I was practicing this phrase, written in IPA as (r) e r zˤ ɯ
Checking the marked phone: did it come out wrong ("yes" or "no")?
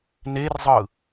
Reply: yes